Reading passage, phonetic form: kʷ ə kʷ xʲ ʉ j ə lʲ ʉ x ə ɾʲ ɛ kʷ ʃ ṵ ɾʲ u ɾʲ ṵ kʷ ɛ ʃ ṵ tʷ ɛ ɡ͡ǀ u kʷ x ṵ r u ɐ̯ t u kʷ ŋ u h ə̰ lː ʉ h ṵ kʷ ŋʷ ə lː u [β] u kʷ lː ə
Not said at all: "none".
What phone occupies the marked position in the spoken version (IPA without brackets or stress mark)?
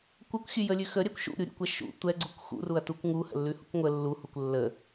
h